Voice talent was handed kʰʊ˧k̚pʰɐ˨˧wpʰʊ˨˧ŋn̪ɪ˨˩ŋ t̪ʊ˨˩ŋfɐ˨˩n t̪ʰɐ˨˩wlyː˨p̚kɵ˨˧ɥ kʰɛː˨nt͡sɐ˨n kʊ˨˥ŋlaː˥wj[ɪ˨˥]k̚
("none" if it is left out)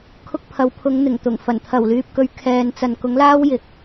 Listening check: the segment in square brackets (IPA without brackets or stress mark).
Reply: ɪ˨